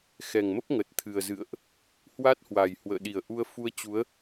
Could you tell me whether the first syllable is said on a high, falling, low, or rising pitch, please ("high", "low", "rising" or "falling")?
low